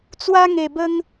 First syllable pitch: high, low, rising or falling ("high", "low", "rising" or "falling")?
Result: high